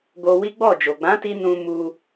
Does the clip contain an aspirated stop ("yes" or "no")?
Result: no